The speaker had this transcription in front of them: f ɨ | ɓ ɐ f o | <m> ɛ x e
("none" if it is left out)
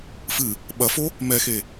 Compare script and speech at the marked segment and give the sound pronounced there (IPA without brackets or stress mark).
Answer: m